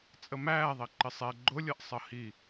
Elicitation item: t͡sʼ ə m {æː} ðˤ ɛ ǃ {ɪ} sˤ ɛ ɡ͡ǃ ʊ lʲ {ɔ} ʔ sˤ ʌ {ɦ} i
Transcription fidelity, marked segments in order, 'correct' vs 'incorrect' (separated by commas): correct, correct, incorrect, incorrect